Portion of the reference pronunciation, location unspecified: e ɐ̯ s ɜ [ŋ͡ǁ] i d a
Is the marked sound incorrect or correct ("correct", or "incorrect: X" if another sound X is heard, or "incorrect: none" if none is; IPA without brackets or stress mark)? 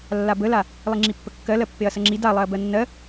correct